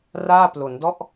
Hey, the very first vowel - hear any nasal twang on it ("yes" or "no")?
no